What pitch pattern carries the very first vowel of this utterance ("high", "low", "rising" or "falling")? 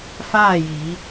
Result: falling